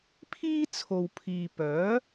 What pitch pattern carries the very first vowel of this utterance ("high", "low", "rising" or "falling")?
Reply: high